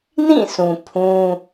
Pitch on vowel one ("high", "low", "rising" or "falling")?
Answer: falling